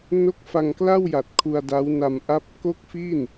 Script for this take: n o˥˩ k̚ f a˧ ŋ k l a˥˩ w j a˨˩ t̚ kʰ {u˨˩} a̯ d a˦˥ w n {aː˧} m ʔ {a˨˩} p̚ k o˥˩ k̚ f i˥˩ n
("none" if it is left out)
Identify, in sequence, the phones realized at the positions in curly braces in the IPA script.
u˧, a˧, a˦˥

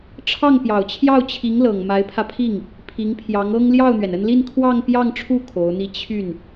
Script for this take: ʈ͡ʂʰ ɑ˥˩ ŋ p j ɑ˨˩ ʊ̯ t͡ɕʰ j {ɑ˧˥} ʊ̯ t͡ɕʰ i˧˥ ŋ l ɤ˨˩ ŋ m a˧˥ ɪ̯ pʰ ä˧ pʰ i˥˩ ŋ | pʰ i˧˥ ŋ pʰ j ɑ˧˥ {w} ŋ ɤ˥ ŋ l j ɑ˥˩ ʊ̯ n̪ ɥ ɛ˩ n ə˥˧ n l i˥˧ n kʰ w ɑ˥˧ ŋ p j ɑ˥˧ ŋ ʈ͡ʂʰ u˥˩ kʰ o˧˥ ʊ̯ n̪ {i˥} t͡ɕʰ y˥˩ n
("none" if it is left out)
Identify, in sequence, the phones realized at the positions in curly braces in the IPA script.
ɑ˥˩, none, i˥˧

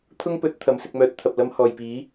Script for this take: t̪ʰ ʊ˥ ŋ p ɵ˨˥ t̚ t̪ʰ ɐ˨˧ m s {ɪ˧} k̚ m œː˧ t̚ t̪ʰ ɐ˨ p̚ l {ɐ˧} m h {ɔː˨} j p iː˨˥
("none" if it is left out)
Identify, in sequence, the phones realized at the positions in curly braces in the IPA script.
ɪ˧, ɐ˧, ɔː˨

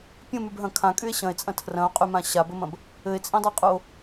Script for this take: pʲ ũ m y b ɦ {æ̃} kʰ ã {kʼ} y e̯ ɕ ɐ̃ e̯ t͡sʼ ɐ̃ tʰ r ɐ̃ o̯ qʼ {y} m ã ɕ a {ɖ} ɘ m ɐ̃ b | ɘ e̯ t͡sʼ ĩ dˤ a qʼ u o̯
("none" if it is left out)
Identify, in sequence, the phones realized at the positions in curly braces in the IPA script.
ɐ̃, kʼ, y, b

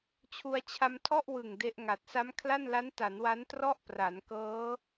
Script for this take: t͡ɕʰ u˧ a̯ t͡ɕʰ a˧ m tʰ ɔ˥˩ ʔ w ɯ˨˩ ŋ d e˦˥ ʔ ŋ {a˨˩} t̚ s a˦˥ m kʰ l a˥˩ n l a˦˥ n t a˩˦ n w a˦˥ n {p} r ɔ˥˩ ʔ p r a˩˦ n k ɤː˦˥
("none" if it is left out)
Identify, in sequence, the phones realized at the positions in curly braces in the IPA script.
a˨˩, t

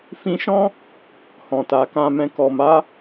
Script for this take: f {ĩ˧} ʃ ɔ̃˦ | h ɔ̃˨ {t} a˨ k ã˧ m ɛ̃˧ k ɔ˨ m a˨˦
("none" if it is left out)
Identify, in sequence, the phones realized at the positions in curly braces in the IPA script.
ĩ˧, t

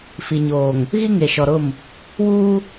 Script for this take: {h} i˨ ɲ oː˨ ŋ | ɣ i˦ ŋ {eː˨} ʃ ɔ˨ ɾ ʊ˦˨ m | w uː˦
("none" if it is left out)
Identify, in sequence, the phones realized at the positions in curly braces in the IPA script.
f, e˨

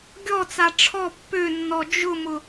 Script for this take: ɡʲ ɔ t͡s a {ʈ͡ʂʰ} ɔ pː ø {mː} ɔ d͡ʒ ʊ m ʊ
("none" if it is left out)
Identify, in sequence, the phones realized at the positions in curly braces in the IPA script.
ʈ͡ʂʰ, nː

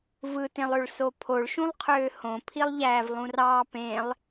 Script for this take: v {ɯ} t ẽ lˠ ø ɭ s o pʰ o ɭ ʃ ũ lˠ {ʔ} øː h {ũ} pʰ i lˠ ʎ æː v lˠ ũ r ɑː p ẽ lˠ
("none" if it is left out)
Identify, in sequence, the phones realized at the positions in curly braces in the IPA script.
ɯ, qʰ, õ

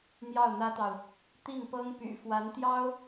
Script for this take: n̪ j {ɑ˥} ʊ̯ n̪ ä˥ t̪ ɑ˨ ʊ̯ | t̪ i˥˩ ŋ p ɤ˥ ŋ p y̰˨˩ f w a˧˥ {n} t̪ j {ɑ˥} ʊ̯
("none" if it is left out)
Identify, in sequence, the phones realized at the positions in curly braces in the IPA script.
ɑ˥˩, n, ɑ˥

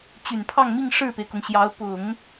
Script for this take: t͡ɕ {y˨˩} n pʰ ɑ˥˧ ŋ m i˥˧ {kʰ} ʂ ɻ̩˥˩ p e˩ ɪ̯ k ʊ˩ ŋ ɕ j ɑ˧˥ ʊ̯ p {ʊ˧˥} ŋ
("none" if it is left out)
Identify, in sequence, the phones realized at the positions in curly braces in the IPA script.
y˨˩, ŋ, ʊ˨˩˦

